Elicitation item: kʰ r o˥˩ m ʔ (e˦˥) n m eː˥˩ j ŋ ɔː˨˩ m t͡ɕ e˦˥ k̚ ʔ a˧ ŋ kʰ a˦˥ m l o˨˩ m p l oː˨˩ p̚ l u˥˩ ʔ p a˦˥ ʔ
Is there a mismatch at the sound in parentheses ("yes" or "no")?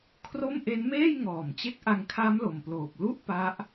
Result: no